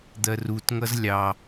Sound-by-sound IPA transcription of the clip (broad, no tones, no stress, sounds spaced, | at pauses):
d̪ ɜ r u t ŋ ʌ z lʲ ɑ